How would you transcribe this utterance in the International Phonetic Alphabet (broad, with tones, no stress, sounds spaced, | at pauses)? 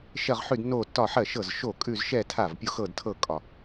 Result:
ʃ ɜ˥˧ ʁ ħ ʉ˥˧ d nː o˥˧ tː ɒ˥˧ ħ ɜ˥˩ ʃ ɤ˥˩ z ʃ o˥˩ kʼ ʉ˥˧ z ʃ ɛ˥˧ tʰ a˥˩ v pʲ o˥˧ x ɤ˥˧ d tʰ ɤ˥˧ kʼ ɒ˥˧